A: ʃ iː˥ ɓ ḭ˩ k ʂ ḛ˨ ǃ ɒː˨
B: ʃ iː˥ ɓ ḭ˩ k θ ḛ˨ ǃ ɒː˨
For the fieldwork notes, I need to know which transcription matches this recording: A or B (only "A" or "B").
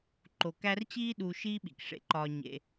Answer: A